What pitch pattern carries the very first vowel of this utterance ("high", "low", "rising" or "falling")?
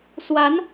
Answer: rising